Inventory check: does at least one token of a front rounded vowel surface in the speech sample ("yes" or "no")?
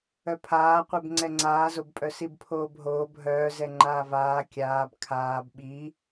yes